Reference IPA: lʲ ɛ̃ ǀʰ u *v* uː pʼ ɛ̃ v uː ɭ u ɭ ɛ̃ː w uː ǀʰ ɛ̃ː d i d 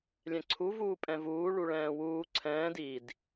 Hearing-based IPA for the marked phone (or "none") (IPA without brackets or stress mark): v